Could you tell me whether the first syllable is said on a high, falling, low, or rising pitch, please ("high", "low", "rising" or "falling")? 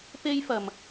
high